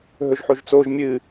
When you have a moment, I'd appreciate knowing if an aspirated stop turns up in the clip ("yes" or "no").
no